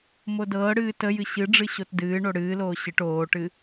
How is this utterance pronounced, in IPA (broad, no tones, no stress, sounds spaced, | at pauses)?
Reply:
m o d ɤː ɽ ɨː t ə j ɨ ɕ ɨ ɖ͡ʐ ɨ ɕ o t d ɨː ɳ o ɽ ɨː l oː ɕ ɨ ʈ oː ʈ ɨ